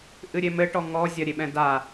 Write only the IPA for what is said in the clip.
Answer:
ʔ ɨ ɾʲ e m ɘ ʈ ɔ ŋ ɔ zʲ ɐ ɾʲ e ɓ ɛ̃ d a

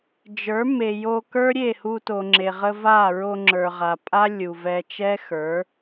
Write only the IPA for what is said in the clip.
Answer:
d͡ʒ ə˞˨˦ m e˨ j o˧ k ə˞˦ ɾʲ e˦˨ h u˧ t o˨ ŋ͡ǁ e˨ ʁ ə˧ v a˦˨ ɹ o˧ ŋ͡ǁ ə˞˨ ʁ a˨ pʼ a˦ lʲ u˨ v ɛ˧ t͡ʃ ɛ˦ x ə˞˨˦

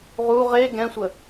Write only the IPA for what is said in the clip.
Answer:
ʁ u ʁ e ɡ ɛ̃ sʷ ə

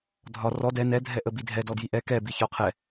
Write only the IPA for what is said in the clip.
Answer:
dʱ ɒ r ɔ d ɛ n ɛ dʱ ɛ ʔ ə b i dʱ ɛ d ɔ d j i ʔ ɛ k ɛ b i ç ɒ qʰ ɛ

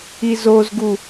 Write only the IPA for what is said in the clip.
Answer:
i z o z ɡ u

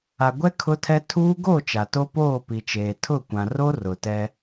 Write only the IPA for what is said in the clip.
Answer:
a˨ ɡʷ ɛ˦ kʰ ʊ˦ tʰ ɛ˦ tʰ uː˦ ɡ o˦˨ t͡ʃ a˨ t o˦ p oː˦˨ p i˨ t͡ʃ eː˨ tʰ ʊ˦˨ kʷ ã˨ r o˦ r ʊ˨ t ɛ˦

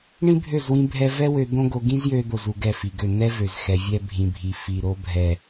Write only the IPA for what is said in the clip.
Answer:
ɳ ĩ˦ bʱ ø˦˨ z w ĩ˧ bʱ ɛ˧ v ɛ˦ w ø˧ d̪ õ˦ ɡ o˧ ɡ ĩ˦ z j ø˧ d̪ o˨ z u˨ ɡ ɛ˦˨ f i˨ ɡ ø˦˨ n̪ ɛ˦ v ø˨ z x ɛ˧ vʲ ɛ˦ bʱ ĩ˧ bʱ i˧ f i˨ ɾ o˧ bʱ ɛ˨

